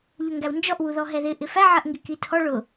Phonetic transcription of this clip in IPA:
ʎʊŋɡæwnd͡ʒɔʔ wuðɔɦɛðɪ ʔɪfæ ʕɜʔŋɡɪkitʰɔ ɭʊ

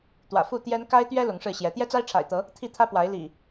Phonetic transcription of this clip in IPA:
t̪wä̰˨˩ fu˥˨t̪jɛ˦n ka˦ɪ̯t̪ɥɛ˦ lʊ˨˦ŋʂɻ̩˥˨ɕjɛ˨˦ t̪jɛ˦t͡sa˦ɪ̯ʈ͡ʂʰa̰˨˩ɪ̯t̪ɤ˨˦ | t̪ʰi˥˨t̪ʰä˦pwa˨˦ɪ̯ lḭ˨˩

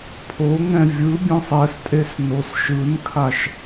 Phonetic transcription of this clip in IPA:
pʰoŋɛ̃ vʲɯbʲɛ̃sˤ ɛstʼes nosʃɯnkʰaʃ

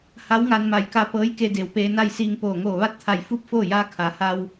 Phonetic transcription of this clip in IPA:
ha˧˥wŋa˧nma˧˩jka˧ pɤː˧˥jke˧de˩w peː˧na˥˨jsiː˧ŋ poː˧˩ ŋoː˧˩ʋa˥˨t̚t̪ʰa˧˩j fu˥˨p̚ foː˥˨jaː˧˥ kʰa˩ha˧w

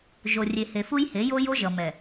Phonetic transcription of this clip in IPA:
ʒo˨rʲe˨he˨ fu˦jhe˨˦jo˦ jo˦ʒʌ˨mɛ˨

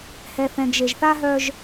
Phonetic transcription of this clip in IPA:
hɛ˨θɛ̃˨ɡʒe˨ʒ θa˦ɦœ˦ʒ

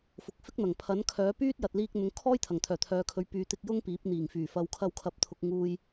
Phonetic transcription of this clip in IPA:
fʊ˨k̚fɪ˥k̚n̪ɐ˨˩ŋ pʰɐ˨˥nkʰœː˨˥ pyː˥t̚ jɐ˨t̚liː˧k̚ n̪ʊ˨˧ŋkʰɔː˥j t̪ʰɐ˨˩ŋt̪ʰœː˨˩t̪ʰœː˨˧kʰɵ˨˧ɥ pyː˨t̪ɪ˧k̚ jʊ˥ŋpiː˨˥p̚n̪iː˨˩ŋfyː˨˩ fɐ˨wkʰɐ˧wkʰɐ˨˥p̚t̪ʰʊ˨k̚ ŋuː˨j

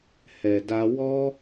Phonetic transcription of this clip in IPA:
hɛ˨da˧ wɔ˦

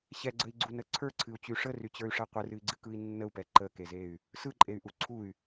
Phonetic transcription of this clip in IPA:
ɕɛɡ͡ǀəi̯ɡ͡ǀunə ǀʰə˞ǀʰɨu̯t͡ɕy ʂəryt͡ɕə˞y̯ʂɛ qʷɨrɨi̯ɡ͡ǀɨkɯi̯ nːəu̯pɛ ǃəkezey̯ | sɯǃʼey̯ʔu ǀʰuy̯

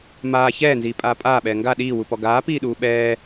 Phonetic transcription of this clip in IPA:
maː çɛːnziːpʼaː pʼaːɓɛː ŋɡa ɗiːwupɔ ɡaːpiːɗuː ɓɛː

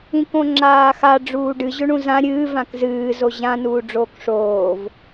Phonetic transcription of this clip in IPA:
ĩkõŋ͡ǁaːxa ɖ͡ʐuːɖɨ ʑɵɳũzã ɾʲɨː vãkzɨː zoʑã nuːɖ͡ʐoːkʂoːv

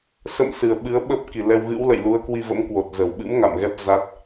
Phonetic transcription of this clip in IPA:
sə̰˧˨m sɨ˨˩ə̯ ɓɨ˨˦ə̯ɓə˦˥p̚ ki˨˩lɛ˧wɣɨ̰˧˥w lə̰˧˨jlu˨˦ə̯kwi˧və̰˧˥m kwo˨˩t̚zəː˧˩wɓɨ̰˧˥m ŋa̰˧˨mɣɛ˦˥p̚ za˦˥t̚

